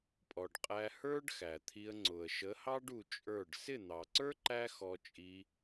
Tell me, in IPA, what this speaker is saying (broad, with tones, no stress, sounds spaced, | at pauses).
pʼ ɔ˨ ɖ qʼ æ˧ h ə˞˦ ɖ x æ˨ t̪ʰ i˧ ə̯ ŋ͡ǀ ʊ˨ ə̯ ʃ ə˨˦ h ɑ˦ ɖ u˧ t͡ʃʼ ə˞˦˨ ɖ s ɪ˦˨ n̪ ɑ˨ ǀ ə˞˦ ǃ æ˦ x ɔ˧ t͡ʃʼ i˧